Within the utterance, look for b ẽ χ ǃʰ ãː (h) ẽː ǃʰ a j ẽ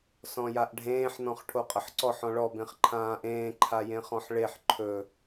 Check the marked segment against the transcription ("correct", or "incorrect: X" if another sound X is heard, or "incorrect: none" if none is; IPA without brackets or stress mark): incorrect: ʔ